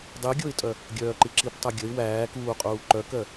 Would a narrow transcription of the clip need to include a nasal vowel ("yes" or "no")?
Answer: no